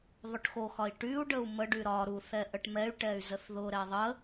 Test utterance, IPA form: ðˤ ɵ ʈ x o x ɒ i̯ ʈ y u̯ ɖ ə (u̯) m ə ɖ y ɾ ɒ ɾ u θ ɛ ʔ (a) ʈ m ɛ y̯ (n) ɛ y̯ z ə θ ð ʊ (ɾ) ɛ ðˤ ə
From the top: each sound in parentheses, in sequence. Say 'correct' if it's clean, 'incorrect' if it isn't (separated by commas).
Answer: correct, incorrect, incorrect, correct